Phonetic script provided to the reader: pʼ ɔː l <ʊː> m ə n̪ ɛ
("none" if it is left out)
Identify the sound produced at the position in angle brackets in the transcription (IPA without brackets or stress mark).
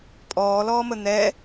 ɔː